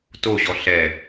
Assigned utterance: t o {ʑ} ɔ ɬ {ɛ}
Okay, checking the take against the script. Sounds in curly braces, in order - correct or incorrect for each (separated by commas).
correct, correct